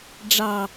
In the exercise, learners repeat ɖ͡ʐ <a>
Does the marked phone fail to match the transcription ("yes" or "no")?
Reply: yes